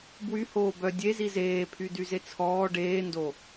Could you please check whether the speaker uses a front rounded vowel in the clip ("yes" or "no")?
yes